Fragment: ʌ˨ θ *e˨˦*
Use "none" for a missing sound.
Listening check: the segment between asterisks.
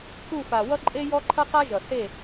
e˦˨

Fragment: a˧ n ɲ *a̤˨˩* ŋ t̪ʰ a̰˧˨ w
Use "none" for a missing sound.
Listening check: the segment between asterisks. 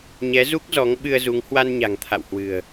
a̤˨˩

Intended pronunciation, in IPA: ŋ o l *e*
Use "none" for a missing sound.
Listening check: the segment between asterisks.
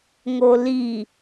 i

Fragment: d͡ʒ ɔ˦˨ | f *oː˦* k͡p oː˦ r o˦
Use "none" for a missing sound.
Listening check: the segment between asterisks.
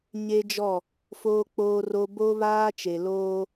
oː˦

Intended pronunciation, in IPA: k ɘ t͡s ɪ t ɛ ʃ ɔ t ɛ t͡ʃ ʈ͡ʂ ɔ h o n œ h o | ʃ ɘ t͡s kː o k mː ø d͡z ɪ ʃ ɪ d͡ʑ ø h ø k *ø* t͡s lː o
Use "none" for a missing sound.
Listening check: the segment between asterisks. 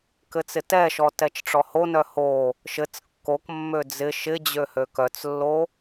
œ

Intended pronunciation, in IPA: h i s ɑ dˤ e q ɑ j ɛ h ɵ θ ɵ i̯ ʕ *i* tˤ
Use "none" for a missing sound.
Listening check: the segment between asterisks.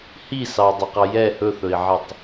e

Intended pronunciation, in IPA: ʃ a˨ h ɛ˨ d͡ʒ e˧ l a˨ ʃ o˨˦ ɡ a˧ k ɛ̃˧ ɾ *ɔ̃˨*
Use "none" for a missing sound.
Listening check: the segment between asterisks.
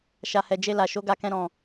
ɔ̃˨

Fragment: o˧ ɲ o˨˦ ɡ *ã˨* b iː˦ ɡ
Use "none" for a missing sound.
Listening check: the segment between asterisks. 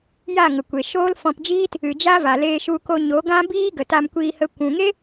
ã˦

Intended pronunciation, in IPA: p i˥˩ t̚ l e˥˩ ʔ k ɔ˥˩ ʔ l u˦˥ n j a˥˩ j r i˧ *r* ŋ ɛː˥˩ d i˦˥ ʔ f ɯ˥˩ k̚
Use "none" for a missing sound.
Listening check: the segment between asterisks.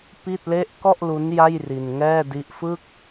n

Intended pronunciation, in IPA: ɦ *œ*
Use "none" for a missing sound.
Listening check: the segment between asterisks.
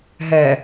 ɛ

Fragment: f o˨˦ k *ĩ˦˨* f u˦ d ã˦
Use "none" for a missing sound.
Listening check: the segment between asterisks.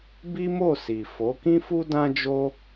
ĩ˦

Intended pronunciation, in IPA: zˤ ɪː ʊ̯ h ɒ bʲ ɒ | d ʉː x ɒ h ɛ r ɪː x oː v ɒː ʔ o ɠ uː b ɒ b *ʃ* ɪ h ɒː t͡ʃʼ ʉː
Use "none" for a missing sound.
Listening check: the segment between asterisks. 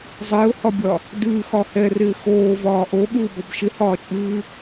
ʃ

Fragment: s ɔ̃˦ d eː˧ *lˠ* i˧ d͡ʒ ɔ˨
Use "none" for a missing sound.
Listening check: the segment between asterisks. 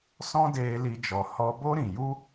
l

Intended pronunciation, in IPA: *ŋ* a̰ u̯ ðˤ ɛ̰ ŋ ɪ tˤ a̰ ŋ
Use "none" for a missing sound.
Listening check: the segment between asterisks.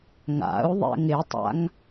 ŋ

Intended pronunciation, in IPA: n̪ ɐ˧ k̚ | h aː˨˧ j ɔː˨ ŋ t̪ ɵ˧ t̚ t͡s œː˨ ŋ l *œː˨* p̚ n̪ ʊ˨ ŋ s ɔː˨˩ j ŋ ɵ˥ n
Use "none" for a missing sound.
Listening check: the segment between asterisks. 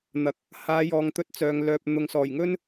œː˨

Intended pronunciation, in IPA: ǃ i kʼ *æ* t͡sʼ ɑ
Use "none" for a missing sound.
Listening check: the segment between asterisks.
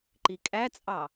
æ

